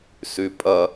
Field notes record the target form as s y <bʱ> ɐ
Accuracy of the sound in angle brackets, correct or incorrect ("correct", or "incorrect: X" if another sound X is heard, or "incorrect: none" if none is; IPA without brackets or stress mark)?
incorrect: pʼ